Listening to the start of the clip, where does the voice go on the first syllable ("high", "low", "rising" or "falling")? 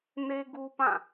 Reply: high